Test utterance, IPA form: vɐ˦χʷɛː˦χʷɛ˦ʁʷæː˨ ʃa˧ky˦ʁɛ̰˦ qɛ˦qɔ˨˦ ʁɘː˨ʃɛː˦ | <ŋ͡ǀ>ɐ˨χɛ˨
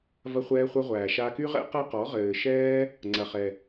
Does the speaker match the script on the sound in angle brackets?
yes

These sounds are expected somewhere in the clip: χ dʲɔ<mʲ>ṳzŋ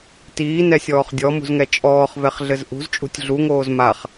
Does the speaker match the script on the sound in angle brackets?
no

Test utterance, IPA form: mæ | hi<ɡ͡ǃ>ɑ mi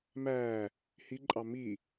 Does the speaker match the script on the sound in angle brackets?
no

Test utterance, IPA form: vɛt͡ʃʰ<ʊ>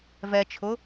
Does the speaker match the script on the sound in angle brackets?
yes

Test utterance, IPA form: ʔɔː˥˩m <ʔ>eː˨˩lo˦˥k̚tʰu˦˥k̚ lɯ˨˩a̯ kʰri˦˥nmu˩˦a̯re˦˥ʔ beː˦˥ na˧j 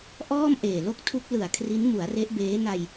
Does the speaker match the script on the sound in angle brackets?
yes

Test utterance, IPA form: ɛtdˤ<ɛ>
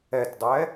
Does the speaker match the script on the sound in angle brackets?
yes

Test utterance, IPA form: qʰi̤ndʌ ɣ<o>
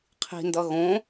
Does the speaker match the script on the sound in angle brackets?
no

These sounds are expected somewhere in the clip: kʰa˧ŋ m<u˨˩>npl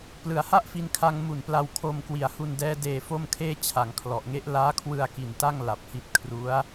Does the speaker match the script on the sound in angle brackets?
yes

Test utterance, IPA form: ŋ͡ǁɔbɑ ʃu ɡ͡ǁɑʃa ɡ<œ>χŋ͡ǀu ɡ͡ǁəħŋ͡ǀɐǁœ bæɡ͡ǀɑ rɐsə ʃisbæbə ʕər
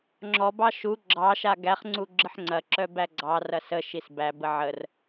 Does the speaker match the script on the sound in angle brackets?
no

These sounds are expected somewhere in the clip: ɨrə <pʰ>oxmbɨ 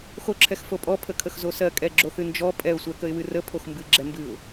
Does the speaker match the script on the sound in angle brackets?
yes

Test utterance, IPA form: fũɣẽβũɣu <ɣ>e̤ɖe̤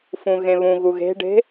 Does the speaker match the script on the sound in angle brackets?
yes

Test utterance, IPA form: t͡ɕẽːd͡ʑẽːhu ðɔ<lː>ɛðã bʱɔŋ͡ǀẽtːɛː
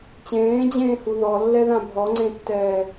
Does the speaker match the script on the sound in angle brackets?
yes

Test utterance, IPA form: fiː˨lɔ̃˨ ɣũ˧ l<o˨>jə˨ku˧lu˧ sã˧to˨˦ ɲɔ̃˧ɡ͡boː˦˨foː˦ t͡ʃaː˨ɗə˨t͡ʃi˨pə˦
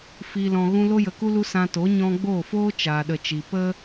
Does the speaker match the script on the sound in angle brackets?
no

